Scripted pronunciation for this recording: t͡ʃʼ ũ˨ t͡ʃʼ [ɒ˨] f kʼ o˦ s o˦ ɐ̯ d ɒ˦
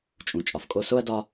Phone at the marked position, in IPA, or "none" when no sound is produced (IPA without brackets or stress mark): ɒ˨